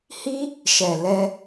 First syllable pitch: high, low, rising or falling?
high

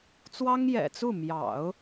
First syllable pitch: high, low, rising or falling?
high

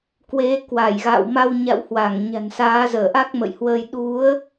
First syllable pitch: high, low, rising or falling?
rising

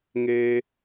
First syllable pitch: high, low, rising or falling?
low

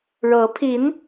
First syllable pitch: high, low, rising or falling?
rising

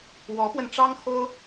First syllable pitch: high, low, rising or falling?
rising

